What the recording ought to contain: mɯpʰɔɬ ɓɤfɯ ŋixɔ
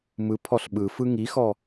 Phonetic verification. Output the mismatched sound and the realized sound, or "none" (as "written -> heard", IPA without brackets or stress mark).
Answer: ɤ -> ɯ